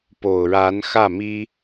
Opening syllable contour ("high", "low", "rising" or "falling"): low